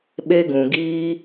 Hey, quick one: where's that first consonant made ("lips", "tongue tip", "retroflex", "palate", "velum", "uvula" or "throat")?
lips